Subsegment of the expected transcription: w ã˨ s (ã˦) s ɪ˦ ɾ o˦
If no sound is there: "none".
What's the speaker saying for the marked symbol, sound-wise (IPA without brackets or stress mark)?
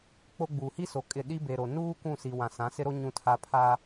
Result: ã˨˦